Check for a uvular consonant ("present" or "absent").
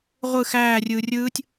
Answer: present